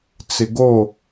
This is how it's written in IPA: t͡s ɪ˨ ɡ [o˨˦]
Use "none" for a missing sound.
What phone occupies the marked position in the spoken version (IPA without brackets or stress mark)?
o˦˨